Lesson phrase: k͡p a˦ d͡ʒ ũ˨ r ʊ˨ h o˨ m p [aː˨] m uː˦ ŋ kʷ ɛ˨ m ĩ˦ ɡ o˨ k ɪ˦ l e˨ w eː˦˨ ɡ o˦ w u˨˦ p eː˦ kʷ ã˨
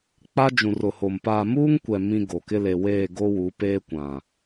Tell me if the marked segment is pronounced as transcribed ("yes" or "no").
yes